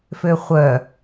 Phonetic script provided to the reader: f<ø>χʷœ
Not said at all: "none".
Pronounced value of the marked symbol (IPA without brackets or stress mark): ø